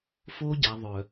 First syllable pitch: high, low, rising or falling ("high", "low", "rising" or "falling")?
high